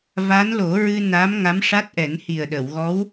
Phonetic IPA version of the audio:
v a˧˥ n l o˨˩˦ ɹ ɨ˧ n a˧˥ m ŋ a˧˥ m ʂ a˦˥ t̚ ʔ ɛ˨˩˦ n h i˨˩ ə̯ ɗ ə˨˩˨ w ɣ ɔ˧˥ w

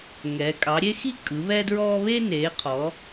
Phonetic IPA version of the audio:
ŋ ɛː˩˧ kʼ ɑ˩˧ ɾʲ e˦ x i˦ kʼ ɯ˩˧ β ɛ˦ d ɹ ɔː˦ β e˦ n eː˩˧ qʰ ɔ˩˧

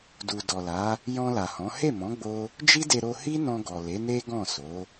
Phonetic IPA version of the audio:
d u˨ d ɔ˨ l a˨˦ | j ɔ̃˧ l a˨ h ɔ̃˨˦ h e˦˨ m ɔ̃˨˦ ɡ͡b o˦ | d͡ʒ i˦ d e˧ ɾ o˧ h i˦ n ɔ̃˧ ɡ ɔ˨ l e˨˦ n e˦ ɡ ɔ̃˦˨ s o˨˦

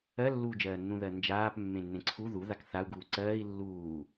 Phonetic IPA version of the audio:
ɜ lː uː d͡ʒ ɜː nː ũ ð ɜ n d͡ʒ aː p mː ẽ nː ẽ ǀʰ u ð u ð a k θ a u̯ ɡ uː ǀ ɜː i̯ lː uː

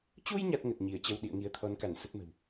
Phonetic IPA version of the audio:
t͡ɕ u˧ j ɲ a˦˥ t̚ ŋ ə˨˩ t̚ ɲ i˧˩ ə̯ t͡ɕ ə˧ w ɗ ḭ˧˨ ə̯ ŋ i˨˦ ə̯ t̪ʰ ɔ˨˦ n k a˧˩ n s ə˦˥ t̚ m ə̤˨˩ w

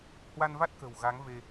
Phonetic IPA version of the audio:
h w a˧ n v a˦˥ t̚ k ə̤˨˩ w ɣ a˨˦ ŋ v e˧

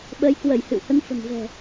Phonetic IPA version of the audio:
ɓ əː˨˦ j k w ə˧˩ j h ɨ̰˧˨ w h ə˨˦ n f ə̤˨˩ n v ɛ̤˨˩

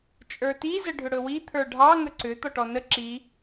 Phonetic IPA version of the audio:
t͡ʃʼ ə˞ t i z ə ɖʱ ʏ ɽ ɵ w i t̪ʰ ə˞ ɖʱ ɑ ŋ ə ǀ ʏ t̪ ɔ ʈ ɔ n ə ǁ i

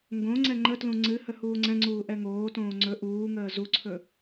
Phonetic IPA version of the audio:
ŋ ɡ õ ŋ͡ǀ ɛ ŋ͡ǃ ə t l ũ ŋ͡ǀ ɨ h ə h uː ŋ͡ǀ ɛ̃ ŋ͡ǀ uː ʔ ɛ ŋ oː t õː ŋ͡ǀ ɵ ʔ uː ŋ əː z u ǀʰ ɵ

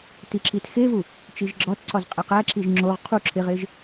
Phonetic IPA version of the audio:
t i ǁ i t x e v u | t͡ʃ i ʒ ɡ͡ǁ ɒ t ǀ ɒ z qʼ e q æ ǁ i ʒ ŋ͡ǁ o ʁ qʰ u ǁʰ e ʁ e ʒ

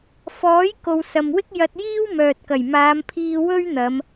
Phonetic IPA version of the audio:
f ɔː˨˥ j k o˨ w s ɐ˨ m w ɪ˥ k̚ j ɐ˧ t̚ j iː˥ w m œː˨ t̚ k ɐ˨˩ j m aː˨˧ m pʰ iː˧ w ɵ˥ ɥ n̪ ɐ˨˧ m

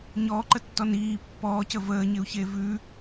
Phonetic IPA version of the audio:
ɲ ɔː ǃ ə tː ɔ n iː pː ɔː c ə v əː ɲ ɪ u̯ ç e v ʉ

